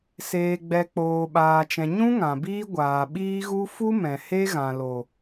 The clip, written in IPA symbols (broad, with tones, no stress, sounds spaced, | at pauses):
s eː˨ ɡ͡b ɛ˨ k͡p oː˨ ɓ aː˨ t͡ʃ ɛ̃˨ ɲ ũ˦ ŋ ã˨ b iː˦ ɡʷ aː˨ ɓ iː˦ ɣ u˦ f u˦ m ɛ̃˨ h e˦ ɣ ã˨ l o˨